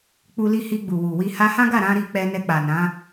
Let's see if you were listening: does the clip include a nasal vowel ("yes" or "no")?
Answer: yes